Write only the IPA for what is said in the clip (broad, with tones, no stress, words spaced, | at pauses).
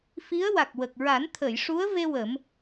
fi˧˥ə̯wa˨˩k̚wə˨˩k̚ ɹa˨˩˦nt̪ʰə˨˩˨j ʂu˧˥ə̯ve˧ wə˨˩˦m